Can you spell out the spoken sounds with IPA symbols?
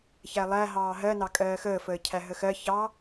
ç æ lˠ æ ɦ ɑː ɦ ɜ n ɑ kʼ ɜː x əː f əː cʰ æ ɦ ə x ɜ ç ɑ

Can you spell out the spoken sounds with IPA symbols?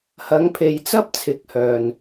h ɐ˨˧ ŋ pʰ e˨ j t͡s ɐ˥ p̚ t͡sʰ ɪ˨˥ k̚ h œː˨ n

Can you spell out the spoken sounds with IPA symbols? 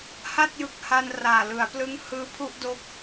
h a˥˩ t̚ j ɯ˨˩ k̚ h a˧ n r aː˨˩ l ɯ˩˦ a̯ p l ɯ˦˥ ŋ h ɯː˦˥ pʰ u˥˩ ʔ d o˦˥ k̚

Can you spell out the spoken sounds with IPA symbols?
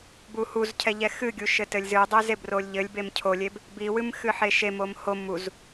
b u h u z cʰ ɛ ʎ ɛ x ɨ ɡʲ u ʃ ɘ t ɘ lʲ z ɨ dˤ e z e b r o lʲ ʎ ɘ lʲ b e m cʰ o lʲ e b | b i w ɨ m x ɨ ħ e ʃ e m o m h o m u z

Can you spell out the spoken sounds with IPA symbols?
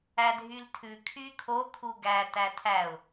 æ dʱ y l tʰ ʉ kʰ y kʰ o kʰ u ɡ æ t æ tʰ æ ʊ̯

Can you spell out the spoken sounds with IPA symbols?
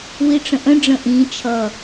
w i ʈ͡ʂ ə̃ ʔ ə̃ ɖ͡ʐ ə̃ ʔ ĩ t͡ʃʰ ʌ

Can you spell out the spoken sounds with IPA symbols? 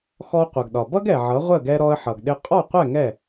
x ɔ˧ qʷ ʌ˩ ɡ ɗ ɒ˩ b ʌ˥ ɡ ɛ˩ ʕ ʌ˩˥ ʁʷ ə˥˩ ɡ ɛ˧ ɾ ɔ˧ ə̯ ħ ʌ˩ ɡ ɗ ɪ˧ qʼ ɔ˥˩ qʷ ɛ˥˩ ŋ ɛ˥˩

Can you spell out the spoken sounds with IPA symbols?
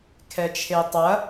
kʰ ɛ t͡ʃʰ e tˤ ɐ

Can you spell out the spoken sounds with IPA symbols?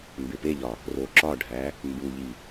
m b e p e ʎ ɒ | r o ǁ ɒ ɖʱ æ | m b u ʎ i

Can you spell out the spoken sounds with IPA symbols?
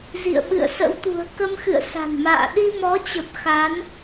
z ḭ˧˨ ə̯ ɓ ɨ̰˧˨ ə̯ s ə̰˧˥ w t̪ ṳ˨˩ ə̯ k ə˧ m x ɨ̰˧˨ ə̯ s a̤˨˩ n m a̰ː˧˨ ɗ i˧ m ɔ˨˦ t͡ɕ ə˨˩ p̚ x a˨˦ n

